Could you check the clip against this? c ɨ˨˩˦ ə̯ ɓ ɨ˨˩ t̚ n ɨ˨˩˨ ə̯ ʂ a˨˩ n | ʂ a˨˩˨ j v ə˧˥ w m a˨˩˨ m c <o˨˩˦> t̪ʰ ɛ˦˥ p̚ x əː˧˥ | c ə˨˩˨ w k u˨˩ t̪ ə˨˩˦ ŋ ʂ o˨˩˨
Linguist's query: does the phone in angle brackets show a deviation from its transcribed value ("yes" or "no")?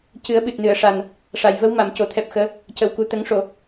no